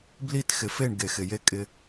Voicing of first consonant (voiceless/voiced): voiced